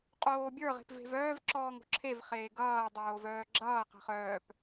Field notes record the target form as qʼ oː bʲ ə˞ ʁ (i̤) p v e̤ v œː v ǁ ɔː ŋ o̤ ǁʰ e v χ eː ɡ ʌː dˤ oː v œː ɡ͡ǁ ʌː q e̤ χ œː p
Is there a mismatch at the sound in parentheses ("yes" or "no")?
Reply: yes